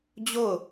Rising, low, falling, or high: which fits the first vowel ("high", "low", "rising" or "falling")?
falling